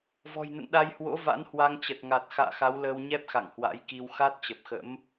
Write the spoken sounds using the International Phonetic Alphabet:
v ɔ̤˨˩ j n ə̰˧˨ n ɗ a˧ j h w o̰˧˥ v a̰˧˥ n h w a˧ ŋ t͡ɕ ə˨˩ t̚ ŋ a˨˩ t̚ x a̰ː˧˨ x a˨˦ w l əː˧ w ɲ ɛ˦˥ p̚ x a̰˧˨ ŋ h w a̰˧˥ j k i˧ w x a˦˥ t̚ t͡ɕ ə˨˩ p̚ x ə̰˧˥ m

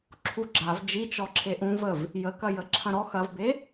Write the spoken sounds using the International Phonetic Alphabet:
ǁʰ u ɡ͡ǁ a v d͡ʒ i t͡ʃ ɔ ǁʰ e ʔ ũ v ə v | j ə k ɐ j ə ǁʰ ɐ̃ ɾ ɔ x ɐ v b e

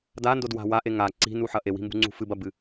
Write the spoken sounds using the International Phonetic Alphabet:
d a n d o d w a̤ w a ʔ e ŋ a ǀ i̤ n u ħ ɐ ʔ e w i̤ m b ṳ ŋ͡ǀ ṳ f ɨ b ɐ b ɨ

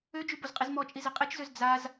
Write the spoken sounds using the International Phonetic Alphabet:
ø d͡ʒ y b o z qʼ i z m ɔ t͡ʃʼ i z i qʼ e t͡ʃ z ø z d͡z a z

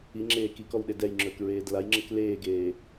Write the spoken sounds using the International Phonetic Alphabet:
i ŋ͡ǁ eː k i k ɔ w ɗ e d ɛ j ŋ͡ǁ ɵː k ɹ eː d l a j ŋ͡ǁ ə k l eː ɡ eː

